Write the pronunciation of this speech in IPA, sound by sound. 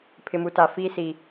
pʰ ɪ˨ m u˨ t a˨ f iː˦ s i˨

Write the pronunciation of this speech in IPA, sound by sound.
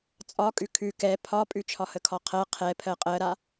t͡sʼ ɒ kʼ ʉ kʰ ʉ k ɛ pʰ ɒ pʼ ʉ t͡ʃʰ ɒ h ə kʰ ɒ qʰ ɜ qʰ ɛ pʰ ɜ qʼ ɜ ɾ a

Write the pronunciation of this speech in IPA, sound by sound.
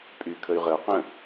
pʼ y kʰ ə y̯ ʁ ə u̯ q ə̃

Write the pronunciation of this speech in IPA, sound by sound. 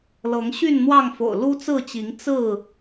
l ɤ˨˦ ŋ ɕ y˥˨ n n̪ w ɑ˥˨ ŋ f o̰˨˩ ʊ̯ l u˦ t͡s ɹ̩˥˨ t͡ɕ i˨˦ ŋ t͡s ɹ̩˥˨

